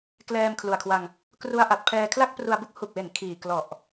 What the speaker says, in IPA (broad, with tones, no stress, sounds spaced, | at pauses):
k l ɛː˧ m kʰ l u˨˩ a̯ kʰ w a˧ ŋ | k r u˦˥ a̯ ʔ a˨˩ t̚ pʰ ɛː˧ kʰ l a˥˩ k̚ p r u˧ a̯ b u˥˩ k̚ h u˨˩ k̚ w e˩˦ n kʰ iː˨˩ k l ɔ˨˩ ʔ